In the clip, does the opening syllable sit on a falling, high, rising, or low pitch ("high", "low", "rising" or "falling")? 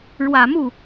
low